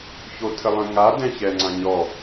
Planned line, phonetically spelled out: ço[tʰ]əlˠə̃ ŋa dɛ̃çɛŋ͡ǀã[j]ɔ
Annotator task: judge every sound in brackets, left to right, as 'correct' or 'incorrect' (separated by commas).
correct, incorrect